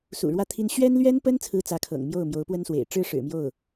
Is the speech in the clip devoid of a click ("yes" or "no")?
yes